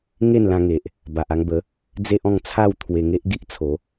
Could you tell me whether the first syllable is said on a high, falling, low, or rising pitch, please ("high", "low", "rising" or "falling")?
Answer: falling